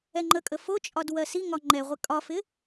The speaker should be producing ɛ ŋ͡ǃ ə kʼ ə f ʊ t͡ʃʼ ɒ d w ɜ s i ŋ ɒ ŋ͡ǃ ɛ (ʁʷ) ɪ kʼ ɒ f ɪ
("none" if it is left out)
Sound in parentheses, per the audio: ʁʷ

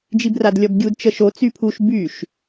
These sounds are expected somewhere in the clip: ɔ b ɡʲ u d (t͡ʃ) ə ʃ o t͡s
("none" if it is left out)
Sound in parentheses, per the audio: t͡ʃ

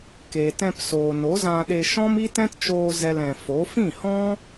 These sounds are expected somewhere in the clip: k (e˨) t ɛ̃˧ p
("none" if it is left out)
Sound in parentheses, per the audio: e˨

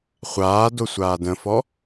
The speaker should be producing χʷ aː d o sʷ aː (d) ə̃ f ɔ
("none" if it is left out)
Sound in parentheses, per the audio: d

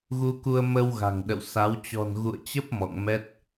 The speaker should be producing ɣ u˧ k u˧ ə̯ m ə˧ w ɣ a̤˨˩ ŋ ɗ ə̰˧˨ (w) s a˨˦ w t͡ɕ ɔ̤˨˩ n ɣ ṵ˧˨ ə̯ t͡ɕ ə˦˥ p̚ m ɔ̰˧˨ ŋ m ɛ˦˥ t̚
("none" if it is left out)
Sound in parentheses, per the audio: w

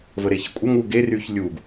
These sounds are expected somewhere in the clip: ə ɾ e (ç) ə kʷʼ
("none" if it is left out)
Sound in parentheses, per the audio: ç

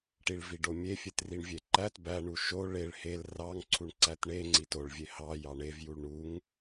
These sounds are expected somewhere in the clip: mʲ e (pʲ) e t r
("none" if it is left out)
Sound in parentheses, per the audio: fʲ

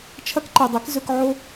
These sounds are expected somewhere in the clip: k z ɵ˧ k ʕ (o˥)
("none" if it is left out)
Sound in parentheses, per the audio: o˥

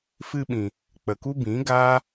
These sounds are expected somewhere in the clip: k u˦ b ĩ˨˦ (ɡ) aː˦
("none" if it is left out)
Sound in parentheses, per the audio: ɡ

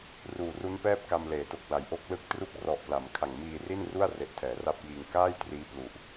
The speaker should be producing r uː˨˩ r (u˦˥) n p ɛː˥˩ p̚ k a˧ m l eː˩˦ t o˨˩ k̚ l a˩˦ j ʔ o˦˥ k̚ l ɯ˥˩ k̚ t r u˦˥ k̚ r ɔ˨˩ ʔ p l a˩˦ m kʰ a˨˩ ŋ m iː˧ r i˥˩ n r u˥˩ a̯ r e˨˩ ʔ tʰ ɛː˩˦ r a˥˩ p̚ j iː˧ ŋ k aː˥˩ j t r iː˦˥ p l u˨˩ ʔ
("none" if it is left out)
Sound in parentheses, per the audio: u˦˥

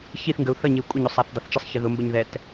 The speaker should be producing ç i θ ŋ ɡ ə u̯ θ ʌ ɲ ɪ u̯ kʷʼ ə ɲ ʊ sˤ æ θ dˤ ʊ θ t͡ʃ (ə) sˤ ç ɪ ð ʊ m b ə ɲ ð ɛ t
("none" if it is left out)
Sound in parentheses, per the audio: ə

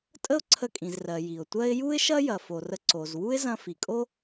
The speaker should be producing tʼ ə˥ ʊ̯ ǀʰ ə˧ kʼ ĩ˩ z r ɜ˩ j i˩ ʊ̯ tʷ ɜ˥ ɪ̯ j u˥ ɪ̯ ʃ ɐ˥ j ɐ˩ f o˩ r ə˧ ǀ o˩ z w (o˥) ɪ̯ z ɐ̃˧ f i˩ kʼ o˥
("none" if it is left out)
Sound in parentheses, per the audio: u˥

